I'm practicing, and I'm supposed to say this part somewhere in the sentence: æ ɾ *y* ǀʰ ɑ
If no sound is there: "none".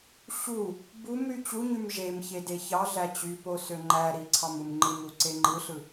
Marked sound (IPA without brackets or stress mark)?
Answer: i